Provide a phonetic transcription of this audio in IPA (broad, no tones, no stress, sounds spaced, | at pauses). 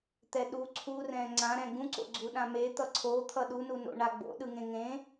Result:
t̪ ɛ ɗ u ǀʰ u r ɛ̃ ŋ͡ǀ ã ɾ ɛ̃ ɡ ũ ǀ o̰ ɡ͡ǀ u ɗ ã m e t̪ ʌ ǀʰ o t̪ʰ ʌ ɗ u n u n o̰ ɳ a ɡ͡b o̰ ɗ ɯ ŋ ẽ ŋ ẽ